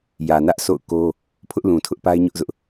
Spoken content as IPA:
jä˨nä˦ʔso̰˦˨ʊ̯ko˦ | pʰʊ˦ʔlũ˨tʰʊ˦ʔ pa˦ɪ̯ɲʊ˦ʔzʊ˦ʔ

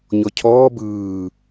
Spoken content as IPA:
ɲɔcʰɔː bɯː

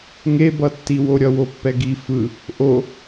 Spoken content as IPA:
ŋebʌtːiwo ɾʲʌwopːɛɡi fɯ | ʔo

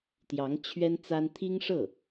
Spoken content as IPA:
t̪jɑ˧˥ŋ t͡ɕʰɥɛ˥n t͡sa˥n t̪ʰi˥ŋʂɤ˥˩

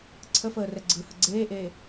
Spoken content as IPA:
ǀʰəfəːrɛ ɡ͡ǀɯhə ɡ͡ǀeːʔeː

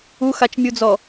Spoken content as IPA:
uxat͡ʃmʲud͡zɔ

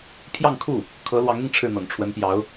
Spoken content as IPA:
pʰjɑ˥˧ŋkʰu˥˩ | kʰɤ˧˥lwɑ˧˥ŋn̪i˧ŋ ʈ͡ʂʰɻ̩˥˩n̪ɤ̰˨˩ŋʈ͡ʂʰwə˧˥npjɑ˧˥ʊ̯

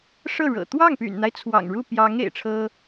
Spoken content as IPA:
ʂɤ˥˩ɻɤ̰˨˩ t̪wɑ˥˩ŋpy̰˨˩nn̪a˦ɪ̯ t͡sʰwɑ̰˨˩ŋɻu˥˩pjɑ˧˥ŋ ḛ˨˩ɪ̯ʈ͡ʂʰɤ˥

